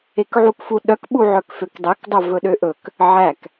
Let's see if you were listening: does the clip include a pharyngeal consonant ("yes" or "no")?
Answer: yes